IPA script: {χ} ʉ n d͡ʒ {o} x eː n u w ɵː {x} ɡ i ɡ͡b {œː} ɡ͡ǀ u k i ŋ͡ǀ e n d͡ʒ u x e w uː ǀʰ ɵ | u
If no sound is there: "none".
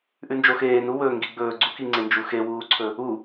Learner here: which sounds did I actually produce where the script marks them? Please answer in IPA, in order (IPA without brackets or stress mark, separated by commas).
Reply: ʔ, o, ŋ, ɵː